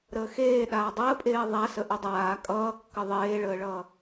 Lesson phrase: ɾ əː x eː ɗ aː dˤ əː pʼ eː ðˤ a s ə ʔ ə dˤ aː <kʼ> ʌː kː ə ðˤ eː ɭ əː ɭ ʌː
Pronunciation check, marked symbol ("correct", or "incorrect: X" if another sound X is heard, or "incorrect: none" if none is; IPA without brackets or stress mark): correct